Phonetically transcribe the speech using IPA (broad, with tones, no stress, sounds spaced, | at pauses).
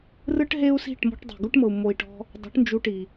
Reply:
r ɯ˦ ʈ ɦ e˦ u̯ s i̤˦˨ ʈ m ɔ̤˧ ʈ dˤ e̤˨ ɡ u˦ ʈ m ɤ˨ u̯ m o˧ i̯ ʈ ɔ̤˦ | dˤ ṳ˨˦ ʈ n d͡ʒ u˧ ʈ i˨